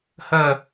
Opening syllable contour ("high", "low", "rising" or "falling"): falling